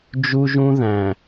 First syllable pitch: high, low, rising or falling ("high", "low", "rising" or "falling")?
high